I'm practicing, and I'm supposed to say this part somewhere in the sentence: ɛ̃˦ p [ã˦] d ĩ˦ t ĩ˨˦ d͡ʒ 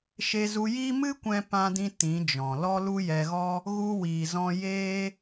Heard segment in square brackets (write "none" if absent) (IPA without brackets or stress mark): ã˦